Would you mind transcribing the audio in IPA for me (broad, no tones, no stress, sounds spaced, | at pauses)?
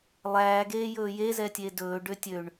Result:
lˠ æː ɡ eː j ɵː j e z ɛ tʲ e d ɵː ɖ ø tʲ ø ɳ